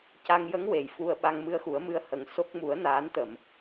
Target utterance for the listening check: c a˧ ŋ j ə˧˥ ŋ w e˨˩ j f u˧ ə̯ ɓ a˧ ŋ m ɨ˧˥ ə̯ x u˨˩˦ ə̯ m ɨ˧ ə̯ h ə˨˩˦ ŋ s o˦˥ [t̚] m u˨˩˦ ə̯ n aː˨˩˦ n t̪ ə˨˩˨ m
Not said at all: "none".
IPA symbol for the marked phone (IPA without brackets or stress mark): k̚